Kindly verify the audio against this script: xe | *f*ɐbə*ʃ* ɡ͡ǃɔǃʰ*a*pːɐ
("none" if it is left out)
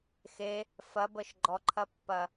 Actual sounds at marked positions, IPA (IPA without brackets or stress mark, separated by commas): f, ʃ, ɐ